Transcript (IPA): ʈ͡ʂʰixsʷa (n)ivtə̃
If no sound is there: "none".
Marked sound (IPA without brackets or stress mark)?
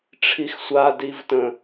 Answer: d